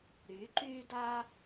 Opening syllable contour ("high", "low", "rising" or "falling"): rising